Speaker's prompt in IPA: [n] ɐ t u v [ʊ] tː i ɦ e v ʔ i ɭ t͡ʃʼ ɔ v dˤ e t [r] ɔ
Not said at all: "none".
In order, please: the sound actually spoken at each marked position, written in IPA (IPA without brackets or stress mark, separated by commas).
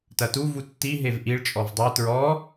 t, u, ɹ